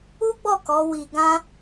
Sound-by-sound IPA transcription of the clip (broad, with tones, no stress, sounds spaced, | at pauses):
u˦ ɡ͡b ɔ˦˨ k ɔ˨˦ w i˧ ɡ ã˦